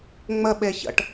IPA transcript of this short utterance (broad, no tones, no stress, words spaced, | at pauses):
ŋ͡məɓe çə̰ʈ